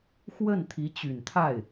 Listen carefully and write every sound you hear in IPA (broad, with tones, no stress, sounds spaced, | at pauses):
x w ə˥˩ n t̪ʰ i˧˥ t͡ɕ y˨˩ n t̪ʰ a˥˩ ɪ̯